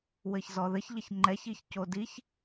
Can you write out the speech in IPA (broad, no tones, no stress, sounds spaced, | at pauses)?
w ɘ ç z ɔ ð ɘ ç ʎ ɐ ç ŋ͡ǃ ɛ ç i ç c o d i ç